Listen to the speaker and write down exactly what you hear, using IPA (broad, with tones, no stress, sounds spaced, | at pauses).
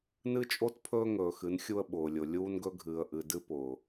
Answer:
n ɨ˦ t͡ʃʼ o˦ t pʰ ɵː˦ ŋ ɵː˨ x ɨ˨˦ n xʲ u˦ ə̯ ɓ ʊː˨ lʲ ʊ˨ lʲ uː˦ n ɡ ɵ˦ ɡʱ ɨː˨ ə̯ ʔ ɨ˨ d ɨ˦ p ʊː˨